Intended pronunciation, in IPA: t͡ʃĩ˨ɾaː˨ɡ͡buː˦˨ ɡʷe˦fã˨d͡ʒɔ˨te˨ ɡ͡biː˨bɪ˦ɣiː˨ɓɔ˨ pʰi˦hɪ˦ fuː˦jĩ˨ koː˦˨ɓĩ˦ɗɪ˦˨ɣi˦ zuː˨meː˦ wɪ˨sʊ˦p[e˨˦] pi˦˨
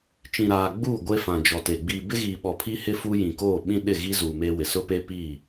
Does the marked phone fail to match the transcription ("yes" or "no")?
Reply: yes